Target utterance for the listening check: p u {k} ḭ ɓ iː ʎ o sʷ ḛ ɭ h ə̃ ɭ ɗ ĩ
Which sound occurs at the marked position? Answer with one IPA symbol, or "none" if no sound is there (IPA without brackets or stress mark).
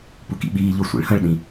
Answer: k